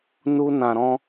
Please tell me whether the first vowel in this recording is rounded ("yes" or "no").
yes